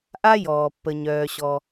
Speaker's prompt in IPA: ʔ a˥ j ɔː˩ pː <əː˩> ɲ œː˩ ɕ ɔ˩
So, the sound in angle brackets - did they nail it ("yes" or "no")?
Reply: no